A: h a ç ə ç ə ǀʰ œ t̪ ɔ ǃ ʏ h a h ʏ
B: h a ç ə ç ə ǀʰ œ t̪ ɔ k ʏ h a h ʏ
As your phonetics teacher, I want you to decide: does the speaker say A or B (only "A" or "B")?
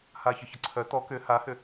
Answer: B